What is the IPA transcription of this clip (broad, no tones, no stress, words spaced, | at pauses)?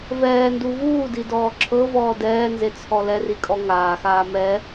vɛːndu vuːdidɔː ǁʰɤvɔː dɛːnzet͡sʰɔ lɛrikʼɔ ŋaːxaː mɛ